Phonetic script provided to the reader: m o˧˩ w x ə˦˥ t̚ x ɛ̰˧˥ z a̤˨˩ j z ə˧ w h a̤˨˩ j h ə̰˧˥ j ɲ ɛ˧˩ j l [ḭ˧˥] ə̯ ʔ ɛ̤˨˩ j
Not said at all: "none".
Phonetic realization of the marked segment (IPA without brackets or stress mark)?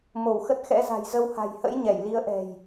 i˨˦